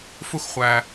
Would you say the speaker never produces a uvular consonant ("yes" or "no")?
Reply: no